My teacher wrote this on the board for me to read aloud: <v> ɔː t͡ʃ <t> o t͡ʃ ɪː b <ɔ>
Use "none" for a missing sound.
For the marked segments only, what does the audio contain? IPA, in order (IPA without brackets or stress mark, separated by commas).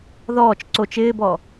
ð, ǀ, ɔ